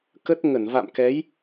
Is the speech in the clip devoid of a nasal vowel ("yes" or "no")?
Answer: yes